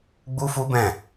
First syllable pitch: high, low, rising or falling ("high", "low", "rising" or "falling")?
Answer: high